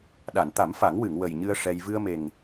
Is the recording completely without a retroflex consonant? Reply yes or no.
no